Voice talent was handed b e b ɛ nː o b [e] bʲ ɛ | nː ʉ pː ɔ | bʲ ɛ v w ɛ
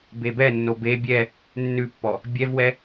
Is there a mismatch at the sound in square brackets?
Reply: no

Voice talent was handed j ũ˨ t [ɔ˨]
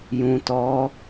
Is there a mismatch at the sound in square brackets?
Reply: yes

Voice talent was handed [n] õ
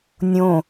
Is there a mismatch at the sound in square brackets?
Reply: yes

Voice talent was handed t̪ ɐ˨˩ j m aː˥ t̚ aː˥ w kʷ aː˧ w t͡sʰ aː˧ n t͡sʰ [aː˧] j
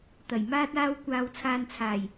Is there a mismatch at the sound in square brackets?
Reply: yes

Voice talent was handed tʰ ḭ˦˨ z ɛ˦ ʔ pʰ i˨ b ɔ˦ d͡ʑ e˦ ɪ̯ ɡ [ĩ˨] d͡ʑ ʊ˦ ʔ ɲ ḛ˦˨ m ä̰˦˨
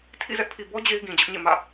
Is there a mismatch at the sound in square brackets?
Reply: no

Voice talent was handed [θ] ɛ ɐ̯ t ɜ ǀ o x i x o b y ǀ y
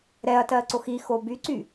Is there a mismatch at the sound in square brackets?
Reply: yes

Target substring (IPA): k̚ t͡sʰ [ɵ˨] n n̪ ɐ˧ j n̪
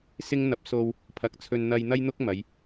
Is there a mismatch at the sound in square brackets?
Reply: yes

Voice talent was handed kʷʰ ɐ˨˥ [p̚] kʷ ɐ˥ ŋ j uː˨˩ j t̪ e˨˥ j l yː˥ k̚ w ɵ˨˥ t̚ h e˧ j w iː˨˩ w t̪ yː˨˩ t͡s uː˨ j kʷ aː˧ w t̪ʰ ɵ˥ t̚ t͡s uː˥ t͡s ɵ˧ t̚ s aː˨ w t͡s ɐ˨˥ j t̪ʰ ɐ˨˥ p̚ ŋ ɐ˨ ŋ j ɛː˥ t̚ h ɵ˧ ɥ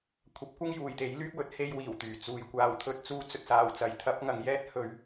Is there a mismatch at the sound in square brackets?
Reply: no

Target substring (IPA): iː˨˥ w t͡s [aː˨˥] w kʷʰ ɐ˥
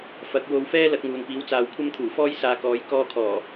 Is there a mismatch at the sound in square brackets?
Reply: yes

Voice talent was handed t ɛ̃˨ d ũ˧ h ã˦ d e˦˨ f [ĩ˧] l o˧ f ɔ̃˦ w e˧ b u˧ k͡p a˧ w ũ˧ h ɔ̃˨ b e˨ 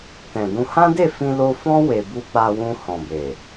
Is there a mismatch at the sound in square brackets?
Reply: no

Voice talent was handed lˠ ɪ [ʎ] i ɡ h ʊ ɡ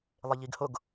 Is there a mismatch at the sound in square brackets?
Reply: no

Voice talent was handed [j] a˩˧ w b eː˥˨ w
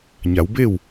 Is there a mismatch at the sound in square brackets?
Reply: yes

